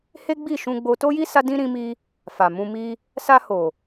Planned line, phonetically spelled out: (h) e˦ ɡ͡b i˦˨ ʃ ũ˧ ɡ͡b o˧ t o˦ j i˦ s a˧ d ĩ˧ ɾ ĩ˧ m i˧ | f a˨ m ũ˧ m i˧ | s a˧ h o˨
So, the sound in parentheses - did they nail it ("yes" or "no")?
yes